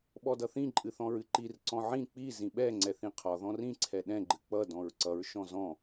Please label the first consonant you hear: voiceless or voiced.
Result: voiced